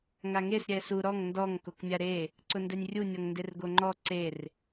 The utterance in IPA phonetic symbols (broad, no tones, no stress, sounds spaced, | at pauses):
ŋ a ŋ e s ɾʲ ɛ s u ɾ ɔ ŋ n d ɔ ŋ k o k mʲ a ɾ e | ǀ ʊ n d ɛ nʲ rʲ u nʲ ɔ ŋ n d e r ɡ o ŋ͡ǃ ɔ ǀ e r